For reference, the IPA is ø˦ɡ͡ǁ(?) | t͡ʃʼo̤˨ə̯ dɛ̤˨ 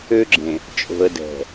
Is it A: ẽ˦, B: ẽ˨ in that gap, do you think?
B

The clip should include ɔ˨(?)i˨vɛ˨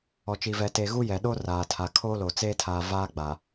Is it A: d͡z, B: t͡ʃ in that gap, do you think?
B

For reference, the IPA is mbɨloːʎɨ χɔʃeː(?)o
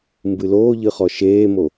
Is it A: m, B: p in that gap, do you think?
A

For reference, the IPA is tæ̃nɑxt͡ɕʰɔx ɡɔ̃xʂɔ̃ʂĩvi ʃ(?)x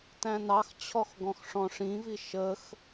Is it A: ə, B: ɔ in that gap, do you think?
A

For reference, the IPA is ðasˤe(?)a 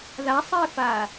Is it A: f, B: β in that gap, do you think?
A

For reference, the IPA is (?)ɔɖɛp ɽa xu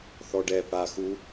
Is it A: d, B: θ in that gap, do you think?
B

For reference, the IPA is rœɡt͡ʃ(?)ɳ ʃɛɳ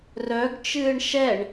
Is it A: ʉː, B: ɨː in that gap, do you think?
B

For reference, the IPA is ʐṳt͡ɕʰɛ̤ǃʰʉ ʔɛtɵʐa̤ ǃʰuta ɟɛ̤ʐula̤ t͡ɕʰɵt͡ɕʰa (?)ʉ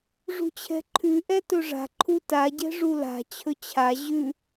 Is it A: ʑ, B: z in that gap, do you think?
A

